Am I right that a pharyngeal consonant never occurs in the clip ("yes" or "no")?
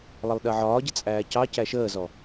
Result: no